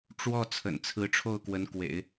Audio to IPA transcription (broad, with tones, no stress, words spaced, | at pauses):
ʈ͡ʂwɔ˥˩ t͡sʰə̰˨˩nt͡sʰɹ̩˧˥ʈ͡ʂʰo˥˩ʊ̯kwə˧˥n kwḛ˨˩˦ɪ̯